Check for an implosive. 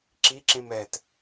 absent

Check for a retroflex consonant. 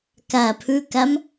absent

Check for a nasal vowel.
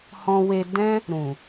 present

